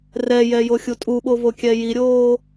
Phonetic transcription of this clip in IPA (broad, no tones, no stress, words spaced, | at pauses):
rɛjɛ joxʲutʼuɓo vokʲɛjiɾʲoː